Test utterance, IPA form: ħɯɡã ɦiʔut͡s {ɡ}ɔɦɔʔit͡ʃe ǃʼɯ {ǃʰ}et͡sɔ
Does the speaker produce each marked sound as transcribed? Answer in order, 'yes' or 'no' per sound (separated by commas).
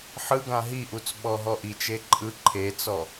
no, yes